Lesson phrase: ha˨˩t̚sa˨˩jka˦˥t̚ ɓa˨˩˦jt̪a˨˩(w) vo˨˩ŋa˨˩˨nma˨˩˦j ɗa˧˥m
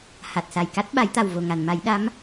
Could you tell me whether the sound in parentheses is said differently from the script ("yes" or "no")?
no